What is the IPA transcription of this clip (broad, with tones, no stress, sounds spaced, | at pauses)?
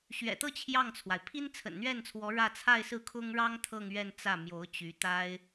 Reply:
ɕ ɥ ɛ̰˨˩ t̪ ɤ˥˧ t͡ɕʰ j ɑ˥˩ ŋ t͡sʰ w a˩ ɪ̯ pʰ i˥ n t͡sʰ ə̰˨˩ n n̪ ɥ ɛ˥˩ n t͡sʰ w ɔ˧˥ ɻ ä˥˧ t͡sʰ a˥˧ ɪ̯ s ɹ̩˥˩ kʰ ʊ˥ ŋ ɻ ɑ˥ ŋ t̪ʰ ɤ˥˧ ŋ ɥ ɛ˥˧ n t͡s ä˥˩ m j o˧˥ ʊ̯ t͡ɕ y˧˥ t̪ a˥ ɪ̯